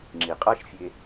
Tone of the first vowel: low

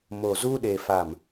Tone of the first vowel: low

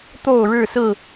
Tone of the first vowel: falling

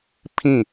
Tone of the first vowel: falling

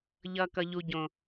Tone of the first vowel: low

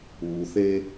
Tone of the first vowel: low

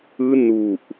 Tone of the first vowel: high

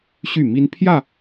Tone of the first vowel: falling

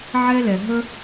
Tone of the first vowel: high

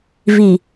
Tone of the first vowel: low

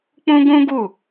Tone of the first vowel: high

